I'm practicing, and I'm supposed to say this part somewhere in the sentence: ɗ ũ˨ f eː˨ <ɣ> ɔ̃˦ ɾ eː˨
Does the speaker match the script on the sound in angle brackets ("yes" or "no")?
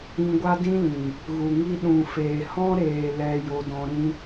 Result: no